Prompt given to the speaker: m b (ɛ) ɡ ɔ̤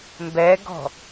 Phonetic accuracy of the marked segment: correct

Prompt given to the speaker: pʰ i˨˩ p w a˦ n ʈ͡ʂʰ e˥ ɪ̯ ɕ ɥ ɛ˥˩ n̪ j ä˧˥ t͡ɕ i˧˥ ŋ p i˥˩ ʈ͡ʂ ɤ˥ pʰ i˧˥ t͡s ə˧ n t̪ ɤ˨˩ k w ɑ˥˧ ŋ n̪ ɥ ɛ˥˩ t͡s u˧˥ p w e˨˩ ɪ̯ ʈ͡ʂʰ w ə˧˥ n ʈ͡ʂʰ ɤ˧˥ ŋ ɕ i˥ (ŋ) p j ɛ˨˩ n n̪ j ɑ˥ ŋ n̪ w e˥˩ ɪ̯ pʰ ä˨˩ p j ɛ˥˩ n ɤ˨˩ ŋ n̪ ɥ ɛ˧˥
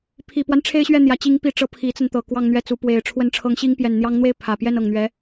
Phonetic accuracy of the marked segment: correct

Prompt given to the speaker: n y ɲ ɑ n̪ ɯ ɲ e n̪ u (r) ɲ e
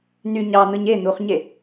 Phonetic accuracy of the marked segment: incorrect: χ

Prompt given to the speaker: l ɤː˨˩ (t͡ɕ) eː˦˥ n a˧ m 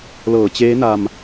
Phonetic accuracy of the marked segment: correct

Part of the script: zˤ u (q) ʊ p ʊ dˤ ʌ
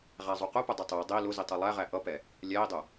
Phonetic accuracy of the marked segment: correct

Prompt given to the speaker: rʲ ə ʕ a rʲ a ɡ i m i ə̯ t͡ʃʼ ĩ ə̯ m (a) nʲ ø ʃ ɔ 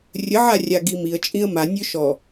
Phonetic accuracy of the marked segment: correct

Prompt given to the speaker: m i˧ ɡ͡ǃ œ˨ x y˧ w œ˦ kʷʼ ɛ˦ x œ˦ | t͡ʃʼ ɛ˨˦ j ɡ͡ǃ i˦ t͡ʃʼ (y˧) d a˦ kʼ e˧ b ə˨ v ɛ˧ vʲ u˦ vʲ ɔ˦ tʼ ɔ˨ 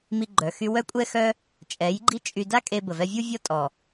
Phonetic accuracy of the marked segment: correct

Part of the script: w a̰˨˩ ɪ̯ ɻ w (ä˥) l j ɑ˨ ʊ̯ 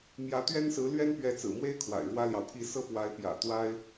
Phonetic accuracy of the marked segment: correct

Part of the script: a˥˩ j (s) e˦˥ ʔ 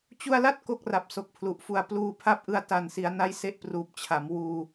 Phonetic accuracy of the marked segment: correct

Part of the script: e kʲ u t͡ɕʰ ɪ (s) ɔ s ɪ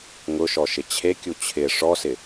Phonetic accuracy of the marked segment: incorrect: ʂ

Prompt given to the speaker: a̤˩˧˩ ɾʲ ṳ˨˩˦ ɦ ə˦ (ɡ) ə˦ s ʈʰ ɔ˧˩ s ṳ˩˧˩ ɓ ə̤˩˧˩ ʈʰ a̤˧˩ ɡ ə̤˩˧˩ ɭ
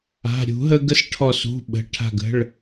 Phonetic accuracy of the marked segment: correct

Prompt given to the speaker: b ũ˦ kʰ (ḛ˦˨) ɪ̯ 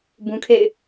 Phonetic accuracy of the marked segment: correct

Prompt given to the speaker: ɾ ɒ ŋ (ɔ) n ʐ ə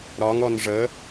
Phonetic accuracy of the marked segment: correct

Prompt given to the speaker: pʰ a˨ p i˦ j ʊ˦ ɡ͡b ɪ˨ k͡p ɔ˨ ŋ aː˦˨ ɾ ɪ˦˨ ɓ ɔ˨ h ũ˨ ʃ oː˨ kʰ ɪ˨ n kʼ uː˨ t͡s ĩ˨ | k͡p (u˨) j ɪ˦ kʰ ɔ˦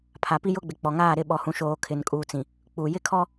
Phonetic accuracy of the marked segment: correct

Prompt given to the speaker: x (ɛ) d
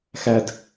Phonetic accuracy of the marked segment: incorrect: æ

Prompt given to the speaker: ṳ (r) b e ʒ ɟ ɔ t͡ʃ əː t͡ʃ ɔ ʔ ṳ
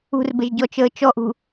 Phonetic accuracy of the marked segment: correct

